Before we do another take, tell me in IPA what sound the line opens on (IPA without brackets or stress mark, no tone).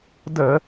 d